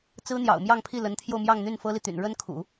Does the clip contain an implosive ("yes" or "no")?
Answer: no